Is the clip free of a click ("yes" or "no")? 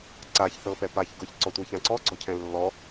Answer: no